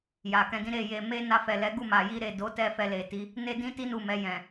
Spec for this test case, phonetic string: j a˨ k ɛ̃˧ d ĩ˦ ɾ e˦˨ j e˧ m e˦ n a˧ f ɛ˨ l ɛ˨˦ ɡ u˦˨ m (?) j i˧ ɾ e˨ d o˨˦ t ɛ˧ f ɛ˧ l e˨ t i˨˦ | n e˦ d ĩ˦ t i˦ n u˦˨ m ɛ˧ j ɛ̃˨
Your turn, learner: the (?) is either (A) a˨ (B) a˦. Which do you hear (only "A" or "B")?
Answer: A